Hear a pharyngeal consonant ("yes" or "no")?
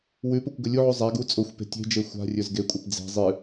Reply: yes